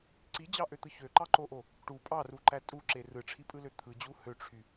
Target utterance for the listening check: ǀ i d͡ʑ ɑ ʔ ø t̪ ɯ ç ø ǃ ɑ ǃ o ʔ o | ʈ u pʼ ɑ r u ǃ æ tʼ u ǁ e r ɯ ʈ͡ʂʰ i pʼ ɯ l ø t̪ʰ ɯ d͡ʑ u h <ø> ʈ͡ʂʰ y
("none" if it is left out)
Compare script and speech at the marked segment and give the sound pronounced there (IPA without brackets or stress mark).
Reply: ø